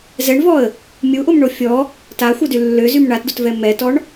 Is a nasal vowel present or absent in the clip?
absent